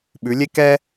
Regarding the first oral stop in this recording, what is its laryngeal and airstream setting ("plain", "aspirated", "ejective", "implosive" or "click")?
implosive